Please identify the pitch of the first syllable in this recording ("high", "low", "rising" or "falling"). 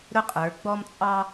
high